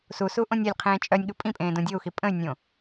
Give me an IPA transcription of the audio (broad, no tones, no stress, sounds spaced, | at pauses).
s u s u ʔ õ nʲ e lʲ qʰ ẽː t͡ʃʼ œ nʲ ɠ u pʼ ĩ pʼ ẽː d õ dʲ o u̯ x i pʼ ə̃ y̯ nʲ õ